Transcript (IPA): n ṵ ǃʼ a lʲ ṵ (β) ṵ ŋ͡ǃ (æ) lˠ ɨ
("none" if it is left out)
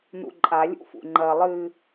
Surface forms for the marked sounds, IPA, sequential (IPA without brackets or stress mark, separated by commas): f, ɐ